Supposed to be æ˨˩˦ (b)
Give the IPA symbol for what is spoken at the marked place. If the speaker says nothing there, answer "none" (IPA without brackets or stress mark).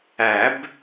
b